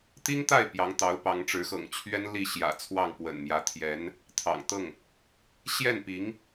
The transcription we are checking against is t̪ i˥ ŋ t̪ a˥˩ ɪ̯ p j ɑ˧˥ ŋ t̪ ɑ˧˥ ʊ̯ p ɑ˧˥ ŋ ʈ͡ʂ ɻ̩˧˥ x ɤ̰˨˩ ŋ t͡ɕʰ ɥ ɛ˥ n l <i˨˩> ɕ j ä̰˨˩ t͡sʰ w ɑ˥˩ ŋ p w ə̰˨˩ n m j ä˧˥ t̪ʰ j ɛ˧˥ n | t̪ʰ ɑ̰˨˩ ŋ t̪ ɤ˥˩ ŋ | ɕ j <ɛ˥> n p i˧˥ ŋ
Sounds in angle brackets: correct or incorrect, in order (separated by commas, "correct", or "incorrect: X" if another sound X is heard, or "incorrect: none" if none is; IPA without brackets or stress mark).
incorrect: i˥˩, incorrect: ɛ˥˩